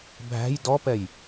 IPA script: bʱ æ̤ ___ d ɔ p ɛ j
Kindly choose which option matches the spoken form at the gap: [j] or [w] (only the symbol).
j